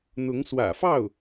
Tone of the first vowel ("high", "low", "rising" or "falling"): rising